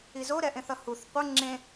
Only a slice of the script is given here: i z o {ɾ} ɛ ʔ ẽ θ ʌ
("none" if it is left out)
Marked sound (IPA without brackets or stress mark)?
ɾ